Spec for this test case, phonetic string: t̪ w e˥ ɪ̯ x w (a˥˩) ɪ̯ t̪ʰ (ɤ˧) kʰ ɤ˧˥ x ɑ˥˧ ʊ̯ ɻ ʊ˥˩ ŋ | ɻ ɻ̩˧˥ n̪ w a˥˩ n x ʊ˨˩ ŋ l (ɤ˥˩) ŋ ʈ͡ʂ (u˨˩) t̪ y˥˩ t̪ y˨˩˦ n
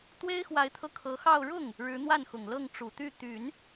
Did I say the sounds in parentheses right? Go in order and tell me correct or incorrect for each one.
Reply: incorrect, correct, correct, correct

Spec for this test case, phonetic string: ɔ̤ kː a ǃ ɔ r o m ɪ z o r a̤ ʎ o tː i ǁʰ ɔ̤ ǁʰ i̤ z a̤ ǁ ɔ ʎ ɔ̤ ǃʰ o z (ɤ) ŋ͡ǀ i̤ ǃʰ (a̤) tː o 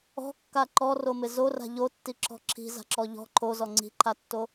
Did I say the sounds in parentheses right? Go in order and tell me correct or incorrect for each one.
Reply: incorrect, incorrect

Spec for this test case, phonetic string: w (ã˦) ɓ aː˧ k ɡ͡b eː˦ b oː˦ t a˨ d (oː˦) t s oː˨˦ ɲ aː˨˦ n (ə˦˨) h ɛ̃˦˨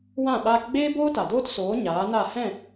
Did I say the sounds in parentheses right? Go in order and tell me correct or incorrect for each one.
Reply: incorrect, correct, incorrect

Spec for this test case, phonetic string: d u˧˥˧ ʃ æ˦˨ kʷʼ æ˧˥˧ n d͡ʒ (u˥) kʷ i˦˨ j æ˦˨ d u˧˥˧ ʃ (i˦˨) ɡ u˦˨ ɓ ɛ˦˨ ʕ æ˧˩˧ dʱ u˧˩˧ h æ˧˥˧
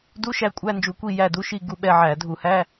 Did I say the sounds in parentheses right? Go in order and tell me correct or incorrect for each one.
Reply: incorrect, correct

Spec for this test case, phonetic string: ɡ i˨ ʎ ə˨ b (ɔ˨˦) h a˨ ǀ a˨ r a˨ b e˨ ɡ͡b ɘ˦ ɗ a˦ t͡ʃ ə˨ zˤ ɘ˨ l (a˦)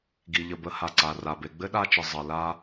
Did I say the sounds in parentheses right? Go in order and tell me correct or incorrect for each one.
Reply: incorrect, correct

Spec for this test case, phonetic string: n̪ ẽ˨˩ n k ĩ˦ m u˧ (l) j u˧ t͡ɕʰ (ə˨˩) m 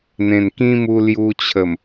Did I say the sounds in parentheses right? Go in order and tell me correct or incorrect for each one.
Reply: correct, correct

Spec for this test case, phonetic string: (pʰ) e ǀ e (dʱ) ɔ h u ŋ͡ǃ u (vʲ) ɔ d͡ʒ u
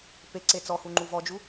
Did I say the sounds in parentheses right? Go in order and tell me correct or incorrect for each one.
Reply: incorrect, incorrect, incorrect

